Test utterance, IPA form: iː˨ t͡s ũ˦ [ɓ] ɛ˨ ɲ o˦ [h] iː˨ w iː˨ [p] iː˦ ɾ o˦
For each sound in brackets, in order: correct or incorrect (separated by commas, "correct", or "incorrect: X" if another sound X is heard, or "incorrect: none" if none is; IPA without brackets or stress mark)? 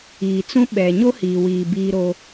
correct, correct, incorrect: b